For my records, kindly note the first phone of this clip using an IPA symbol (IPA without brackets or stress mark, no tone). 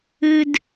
ɨ